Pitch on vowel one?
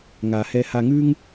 low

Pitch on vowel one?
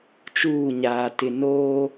falling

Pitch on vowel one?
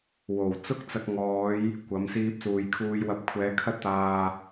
low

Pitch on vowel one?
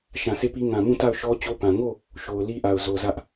low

